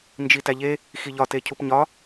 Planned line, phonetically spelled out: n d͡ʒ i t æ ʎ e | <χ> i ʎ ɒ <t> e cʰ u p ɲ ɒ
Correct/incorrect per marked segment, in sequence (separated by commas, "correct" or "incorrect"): incorrect, correct